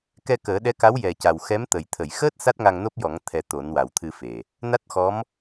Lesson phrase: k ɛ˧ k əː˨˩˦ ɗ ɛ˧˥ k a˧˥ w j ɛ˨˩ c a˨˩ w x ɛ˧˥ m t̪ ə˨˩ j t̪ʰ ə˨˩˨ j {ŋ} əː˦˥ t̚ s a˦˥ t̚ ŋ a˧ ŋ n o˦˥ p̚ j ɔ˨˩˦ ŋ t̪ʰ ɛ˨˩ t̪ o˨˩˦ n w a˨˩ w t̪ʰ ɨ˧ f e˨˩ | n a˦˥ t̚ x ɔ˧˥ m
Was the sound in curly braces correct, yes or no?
no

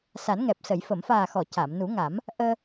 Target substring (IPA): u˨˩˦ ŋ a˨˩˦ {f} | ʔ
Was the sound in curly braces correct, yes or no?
no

